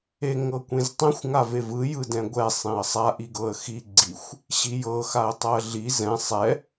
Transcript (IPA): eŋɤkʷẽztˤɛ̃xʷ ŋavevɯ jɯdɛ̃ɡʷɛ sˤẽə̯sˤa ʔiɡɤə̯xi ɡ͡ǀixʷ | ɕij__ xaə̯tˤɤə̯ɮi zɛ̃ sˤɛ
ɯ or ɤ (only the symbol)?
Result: ɤ